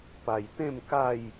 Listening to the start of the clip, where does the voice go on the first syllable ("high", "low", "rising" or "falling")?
low